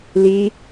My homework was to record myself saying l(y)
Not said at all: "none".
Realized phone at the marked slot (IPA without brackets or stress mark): i